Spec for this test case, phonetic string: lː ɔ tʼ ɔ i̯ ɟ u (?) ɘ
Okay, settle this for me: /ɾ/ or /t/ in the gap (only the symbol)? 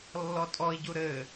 ɾ